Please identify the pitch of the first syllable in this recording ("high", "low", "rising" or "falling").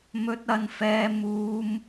high